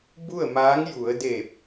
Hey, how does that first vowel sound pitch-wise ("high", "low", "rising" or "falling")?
falling